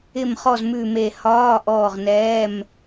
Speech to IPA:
ɪ˦˨ m χ ɔ˦˨ z m ʉ˦˨ m e˦˨ h ɒː˧˥˧ ʔ ɔː˦˨ ʁ n ɛː˧˥˧ m

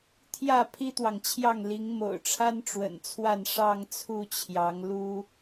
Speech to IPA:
t̪ʰ j ä˥˨ pʰ i˦ t̪ w ɑ˨ ŋ t͡ɕʰ j ɑ˥˨ ŋ l i˨˦ ŋ m o̰˨˩ ʊ̯ ʈ͡ʂʰ a˦ n ʈ͡ʂ w ə̰˨˩ n t͡sʰ w a˥˨ n ʂ ɑ˥˨ ŋ t͡sʰ u˥˨ t͡ɕʰ j ɑ˨˦ ŋ l u˦

